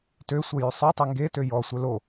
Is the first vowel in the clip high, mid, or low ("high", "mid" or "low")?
mid